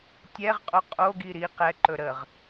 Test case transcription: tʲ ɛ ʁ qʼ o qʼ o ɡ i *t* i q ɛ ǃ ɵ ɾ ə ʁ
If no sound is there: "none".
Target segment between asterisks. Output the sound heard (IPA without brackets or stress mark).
ɾ